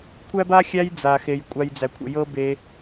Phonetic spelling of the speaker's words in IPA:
kʷʰ æ˥ b a˥ xʲ æ˦ j d͡z a˨ x e˨ j kʷʼ a˥ j d͡z æ˦ kʷʰ ə̰˦ j ɤ˥ b e˦

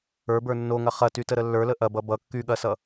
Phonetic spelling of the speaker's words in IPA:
ə˞ b ə˞ nː o ŋ ɐ χ ɐ t y t ə ɾ ə lː ə˞ l ə ʔ ɐ b ʌ b ʌ kː y ɠ ɐ s ʌ

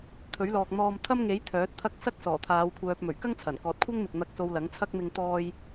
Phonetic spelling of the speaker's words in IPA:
t̪ʰ ɵ˨˥ ɥ l ɔː˨ k̚ n̪ ɔː˧ m t̪ʰ ɐ˥ m ŋ e˨˥ j t̪ʰ œː˨˥ t̚ t̪ʰ ɐ˥ k̚ s ɐ˥ k̚ s ɔː˨˩ t̪ʰ aː˨˧ w kʷʰ œː˨ p̚ m ɵ˨˩ ɥ k ɐ˥ ŋ t͡sʰ ɐ˨˩ n k ɔː˨ t̚ kʷʰ ɐ˥ ŋ m ɪ˨ k̚ n̪ ɐ˧ k̚ s o˧ w l ɐ˨˥ ŋ t͡sʰ ɐ˥ k̚ m ɪ˧ ŋ t̪ ɔː˧ j

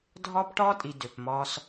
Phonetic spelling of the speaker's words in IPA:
dʱ ɒː˦ p ʈ ɒː˦ tʼ i˨ d ø˨ p m ɒː˦ s

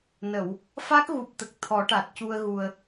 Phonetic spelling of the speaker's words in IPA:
n ə˨˩˨ w | f a˦˥ k̚ ɣ u˨˩ p̚ t̪ ə˨˩ k̚ t̪ʰ ɔ˨˩˦ ʈ a˨˩ t̚ c u˧ ə̯ ɣ u˨˩ ə̯

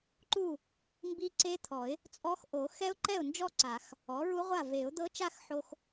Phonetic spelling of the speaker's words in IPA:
ǃ u˥˩ | m b i˦˥ ǀ e˦˥ t̪ʰ ɔ˨˩˦ ɪ̯ | t͡sʼ ɔ˦˥ x ʔ o˨˩˦ x ɛ˦˥ ʊ̯ ǃ ɛ˥˩ ʊ̯ n d͡ʒ ɔ˥˧ ǀ a˨˩˦ x | ɔ˩˥ ɹ u˦˥ ʁʷ a˥˩ v e˨˩˦ ʊ̯ d̪ ɤ˦˥ t͡ʃ a˥˧ x ħ o˧ x

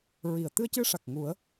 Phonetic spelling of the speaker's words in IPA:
ɹ i˨˩˨ ə̯ t̪ ɨ˧ ə̯ c ɨ˧ ʂ a˨˩ k̚ ŋ u˨˩˦ ə̯

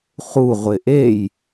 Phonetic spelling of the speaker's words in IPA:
χ u ʁʷ ɪ ʔ e j

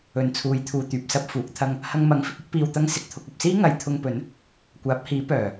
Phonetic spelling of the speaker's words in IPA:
ɵ˨ n t͡sʰ uː˨˧ j t̪ʰ uː˨ t̪ yː˨ p̚ s ɐ˥ p̚ f uː˨˥ k̚ t̪ʰ ɐ˧ ŋ | h ɐ˧ ŋ m ɐ˨˥ ŋ f ɪ˨ k̚ ʊ˥ k̚ p iː˧ w t̪ ɐ˥ ŋ s ɪ˨˥ k̚ t̪ʰ ʊ˧ k̚ ɐ˧ p̚ s iː˥ ŋ ɐ˨˧ j t̪ʰ ʊ˧ ŋ p ɵ˨˥ n | kʷ aː˨˥ p̚ h iː˨˥ p œː˨˩

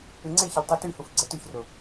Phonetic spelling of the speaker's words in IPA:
ɪ ŋ͡ǀ e ç ɪ l tˤ y t y h u f ɡ͡ǀ ɛ t y ç r ʊ

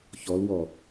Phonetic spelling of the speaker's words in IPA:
ç ɔ l w ɔ

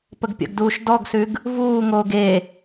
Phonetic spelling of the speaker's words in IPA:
p ə ɡ pʲ ə̰ ɡ d uː ʃ d ɔ ɡ s ʉ ɡ | v uː ŋ oː ɡ e

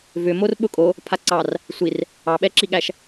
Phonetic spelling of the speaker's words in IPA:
v ʏ m o r ɓ ʊ kʼ o | pʰ a ǀ ɑ r | sʷ i r | ɑ ɓ ɛ ǁ i ɠ æ ʃ

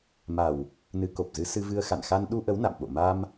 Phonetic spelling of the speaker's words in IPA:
m a˨˩ w | n ɨ˨˦ k o˨˩ p̚ z ɨ˨˦ s ɨ˧ v ɨ˧ ə̯ x a̰˧˨ n x a˧ n ɗ u˧ ʔ ə˨˦ w n a̰˧˨ m ɓ o̰˧˨ m a˧ m

